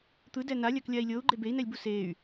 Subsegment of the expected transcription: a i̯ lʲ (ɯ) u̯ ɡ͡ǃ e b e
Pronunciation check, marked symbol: incorrect: ɤ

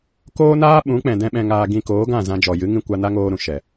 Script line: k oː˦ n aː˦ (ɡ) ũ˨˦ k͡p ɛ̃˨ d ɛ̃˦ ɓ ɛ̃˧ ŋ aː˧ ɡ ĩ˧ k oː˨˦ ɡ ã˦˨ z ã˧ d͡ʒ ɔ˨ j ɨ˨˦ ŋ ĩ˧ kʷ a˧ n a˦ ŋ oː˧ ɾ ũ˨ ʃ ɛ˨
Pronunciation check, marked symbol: incorrect: ɓ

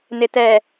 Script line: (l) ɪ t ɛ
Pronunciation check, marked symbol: incorrect: n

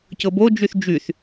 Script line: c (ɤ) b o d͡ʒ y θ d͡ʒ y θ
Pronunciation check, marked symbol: correct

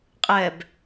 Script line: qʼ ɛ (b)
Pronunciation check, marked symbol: correct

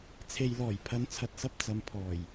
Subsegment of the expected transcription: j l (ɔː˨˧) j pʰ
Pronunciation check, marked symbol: incorrect: ɔː˨˩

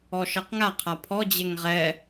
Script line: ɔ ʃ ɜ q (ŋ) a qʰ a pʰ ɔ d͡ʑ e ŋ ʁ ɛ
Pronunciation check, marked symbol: correct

